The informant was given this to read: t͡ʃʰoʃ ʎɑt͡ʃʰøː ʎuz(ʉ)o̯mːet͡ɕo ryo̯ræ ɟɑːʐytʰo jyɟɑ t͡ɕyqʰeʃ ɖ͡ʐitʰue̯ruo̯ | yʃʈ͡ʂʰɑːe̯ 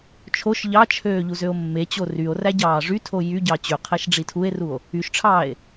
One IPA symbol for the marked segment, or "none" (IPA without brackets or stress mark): ø